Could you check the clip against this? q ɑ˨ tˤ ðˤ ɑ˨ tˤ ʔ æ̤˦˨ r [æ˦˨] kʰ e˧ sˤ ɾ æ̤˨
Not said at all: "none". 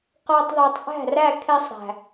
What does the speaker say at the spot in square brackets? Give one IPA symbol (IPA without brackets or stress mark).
æ˦˨